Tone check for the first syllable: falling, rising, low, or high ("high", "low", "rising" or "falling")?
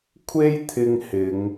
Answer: high